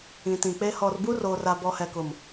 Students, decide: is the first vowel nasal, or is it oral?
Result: nasal